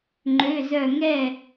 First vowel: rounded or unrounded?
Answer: rounded